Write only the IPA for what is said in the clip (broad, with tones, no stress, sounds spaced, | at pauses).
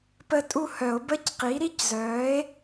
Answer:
p ə˦˨ tʼ u˦˨ h œ˨˩˦ o̯ b ə˧˥˧ c q i˩˥ ɾ i˦˥ c z œː˩˥ e̯